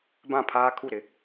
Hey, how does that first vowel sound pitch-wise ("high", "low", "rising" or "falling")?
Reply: falling